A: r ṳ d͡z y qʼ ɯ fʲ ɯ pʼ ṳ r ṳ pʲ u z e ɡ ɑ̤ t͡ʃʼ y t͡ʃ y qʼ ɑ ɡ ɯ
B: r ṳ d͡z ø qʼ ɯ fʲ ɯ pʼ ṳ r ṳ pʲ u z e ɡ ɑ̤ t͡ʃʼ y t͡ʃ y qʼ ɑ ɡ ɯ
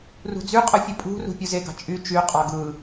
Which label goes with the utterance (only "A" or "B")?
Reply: A